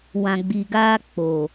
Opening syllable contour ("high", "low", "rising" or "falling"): low